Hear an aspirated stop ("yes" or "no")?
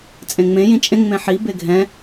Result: no